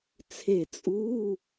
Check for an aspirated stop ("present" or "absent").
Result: present